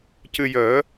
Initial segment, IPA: c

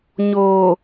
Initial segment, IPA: ɲ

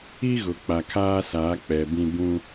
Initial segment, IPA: i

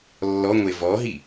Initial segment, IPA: lː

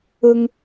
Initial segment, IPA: ʊ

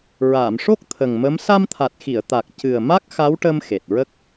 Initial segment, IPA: ɹ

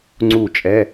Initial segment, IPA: ŋ͡ǀ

